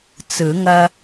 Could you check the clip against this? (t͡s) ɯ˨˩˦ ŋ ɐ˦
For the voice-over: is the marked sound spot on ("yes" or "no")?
yes